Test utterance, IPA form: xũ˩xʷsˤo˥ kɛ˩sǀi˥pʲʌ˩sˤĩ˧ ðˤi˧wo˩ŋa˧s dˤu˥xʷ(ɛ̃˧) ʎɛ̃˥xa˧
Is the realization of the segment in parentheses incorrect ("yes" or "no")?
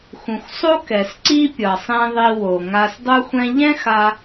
yes